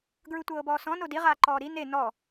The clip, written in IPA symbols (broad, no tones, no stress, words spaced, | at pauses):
ɡɹɯtʷɤːbɔːsɔ̃ nodi ʁaːǃɔːɾi ne nɔ